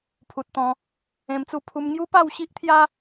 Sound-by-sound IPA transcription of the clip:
pʰ u˨ t̚ t̪ ɔ̃˧ | ẽ˧ m t͡s u˥˧ pʰ u˦ m ŋ j u˦ p a˥˧ w ɕ i˦ ʔ t̪ʰ j a˦

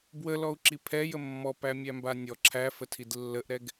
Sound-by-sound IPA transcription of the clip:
b w ə l ɔ u̯ ǁ i pʰ ɛ j ə mː ɔ p æ mʲ æ m b a nʲ ɔ ǁʰ æ f ə tʰ i d lː ə ʔ ɾ ɛ ɡ

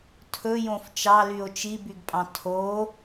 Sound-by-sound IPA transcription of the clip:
tʰ ɵ j õ f t͡ʃ ɑ l y o̯ t͡ʃ i b y ɡ pʼ ɑ̃ tʰ o

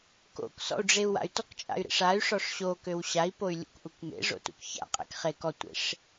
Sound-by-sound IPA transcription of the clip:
k o̰ k s ɔ̰ u̯ ɖ͡ʐ e u̯ w a̰ y̯ t ɔ k t͡ʃʼ a̰ y̯ ɾ ḛ ʂ a y̯ ʂ ɔ ʂ ɕ o k ø w ɕ a i̯ p o y̯ lʲ ṵ k ʔ u k m ḛ ʐ o̰ t ṵ k ç a̰ qʼ ḛ k χ e k ɔ tʷ ḛ ʂ

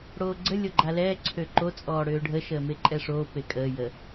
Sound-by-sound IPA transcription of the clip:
ɽ oː ɡ͡ǀ ə lʲ o ɡ͡ǃ a l ɛː ǀʰ ø ǃ o t͡sʼ ɔː ɽ øː ɖʱ ə ʃ əː m e ǃʼ ɛ ʂ oː p e kʼ əː j ə

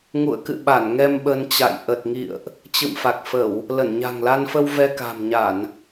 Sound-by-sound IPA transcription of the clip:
ŋ ṵ˧˨ ə̯ k ɨ̰˧˨ ɓ a˧˩ n ŋ ɛ˧ m ɓ ə˧ n t͡ɕ a̰˧˨ j ʔ ə˨˩ t̚ ŋ ḭ˧˨ ə̯ ʔ | t͡ɕ ɨ̰˧˨ m f a˨˩ k̚ f ə˧˩˨ w | l ə˧˩ n ɲ a̤˨˩ ŋ l a˧ n f ə˧ w v ɛ˧ k a̤˨˩ m ɲ a˧˩˨ n

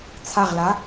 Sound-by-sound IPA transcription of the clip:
t͡sʰ a ʁ l a

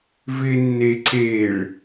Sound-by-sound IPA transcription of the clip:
v ɪ nː e ǀ e ɭ

